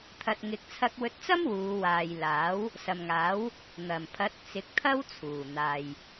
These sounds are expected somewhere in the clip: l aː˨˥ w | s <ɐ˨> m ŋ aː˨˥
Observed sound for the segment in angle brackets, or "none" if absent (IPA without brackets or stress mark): ɐ˨